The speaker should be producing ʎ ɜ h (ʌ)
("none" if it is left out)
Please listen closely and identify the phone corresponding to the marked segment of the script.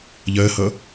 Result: ʌ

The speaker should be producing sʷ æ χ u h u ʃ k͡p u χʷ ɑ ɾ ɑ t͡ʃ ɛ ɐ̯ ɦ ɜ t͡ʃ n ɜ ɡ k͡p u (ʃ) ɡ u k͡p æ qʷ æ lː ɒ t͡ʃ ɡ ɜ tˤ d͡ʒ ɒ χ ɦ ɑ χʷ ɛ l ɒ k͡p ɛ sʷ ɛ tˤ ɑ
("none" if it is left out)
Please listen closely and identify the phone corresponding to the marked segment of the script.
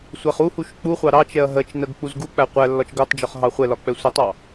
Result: z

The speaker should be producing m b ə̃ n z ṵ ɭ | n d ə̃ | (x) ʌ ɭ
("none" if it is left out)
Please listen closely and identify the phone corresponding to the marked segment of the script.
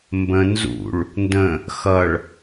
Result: x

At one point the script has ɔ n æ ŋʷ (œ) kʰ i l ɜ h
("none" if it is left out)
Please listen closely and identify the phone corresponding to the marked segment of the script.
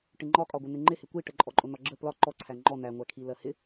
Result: æ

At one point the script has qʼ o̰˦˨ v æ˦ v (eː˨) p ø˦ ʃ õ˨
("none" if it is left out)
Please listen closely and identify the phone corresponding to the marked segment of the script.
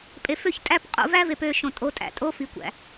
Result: e˨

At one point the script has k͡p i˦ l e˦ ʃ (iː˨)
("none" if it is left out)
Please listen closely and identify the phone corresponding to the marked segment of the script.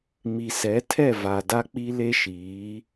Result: iː˨˦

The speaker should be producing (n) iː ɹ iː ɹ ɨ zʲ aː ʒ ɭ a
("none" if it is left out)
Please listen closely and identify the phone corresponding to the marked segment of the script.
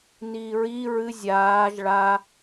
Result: n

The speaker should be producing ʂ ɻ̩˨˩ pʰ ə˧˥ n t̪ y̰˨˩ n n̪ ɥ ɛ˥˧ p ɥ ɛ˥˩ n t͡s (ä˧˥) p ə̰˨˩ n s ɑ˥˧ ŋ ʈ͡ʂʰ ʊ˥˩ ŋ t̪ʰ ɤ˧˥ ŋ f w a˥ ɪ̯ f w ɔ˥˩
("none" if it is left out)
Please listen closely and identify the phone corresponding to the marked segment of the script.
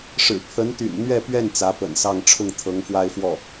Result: ä˧˥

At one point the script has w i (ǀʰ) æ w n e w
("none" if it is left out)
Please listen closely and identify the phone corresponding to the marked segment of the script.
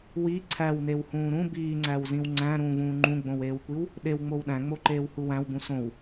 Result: ǀʰ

